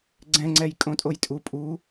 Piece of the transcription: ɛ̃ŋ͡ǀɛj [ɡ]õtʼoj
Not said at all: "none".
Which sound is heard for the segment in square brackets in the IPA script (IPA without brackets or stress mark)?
kʼ